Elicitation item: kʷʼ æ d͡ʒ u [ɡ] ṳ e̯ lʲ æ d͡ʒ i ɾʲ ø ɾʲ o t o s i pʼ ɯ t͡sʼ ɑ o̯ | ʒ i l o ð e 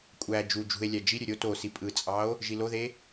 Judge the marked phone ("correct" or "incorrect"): incorrect